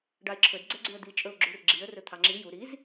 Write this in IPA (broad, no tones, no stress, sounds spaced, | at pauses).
ɖ ɑ ɪ̯ ǁʰ ɵ d ɡ͡ǀ ɛ ɡ͡ǀ ʉ ə̯ d̪ i t͡ʃʼ ɵ ʊ̯ ɡ͡ǁ u r ɡ͡ǁ i ə̯ r ɵ t̪ʰ ɑ ŋ͡ǁ i j u ɾ i z